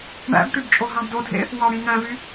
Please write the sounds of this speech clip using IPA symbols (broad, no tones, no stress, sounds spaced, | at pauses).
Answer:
ɳ æ̰ b ʈ y b t͡ʃʼ o ɦ ɑ̃ b d o dʱ ḛ | w ɑ ɽ ĩ ŋ æ̃ v y